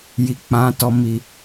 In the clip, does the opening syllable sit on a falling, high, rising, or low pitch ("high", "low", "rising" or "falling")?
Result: low